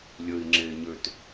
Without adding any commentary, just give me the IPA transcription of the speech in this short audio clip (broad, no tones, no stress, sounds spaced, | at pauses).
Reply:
lʲ ə i̯ ŋ͡ǁ e ɲ ø t